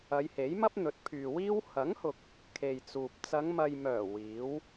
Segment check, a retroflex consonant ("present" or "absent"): absent